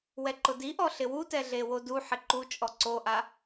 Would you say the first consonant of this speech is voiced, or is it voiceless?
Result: voiced